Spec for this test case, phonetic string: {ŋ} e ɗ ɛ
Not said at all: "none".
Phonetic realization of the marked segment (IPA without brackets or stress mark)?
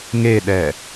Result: ŋ